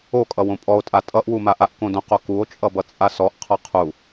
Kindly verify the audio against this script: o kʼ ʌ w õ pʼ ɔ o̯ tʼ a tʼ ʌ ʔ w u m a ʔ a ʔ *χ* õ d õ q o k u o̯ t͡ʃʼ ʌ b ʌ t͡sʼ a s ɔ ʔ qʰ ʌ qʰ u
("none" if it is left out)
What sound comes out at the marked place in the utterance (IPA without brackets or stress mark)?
k